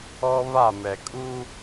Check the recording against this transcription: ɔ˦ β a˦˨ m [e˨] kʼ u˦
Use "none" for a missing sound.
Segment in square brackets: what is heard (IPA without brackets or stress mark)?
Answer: ɛ˨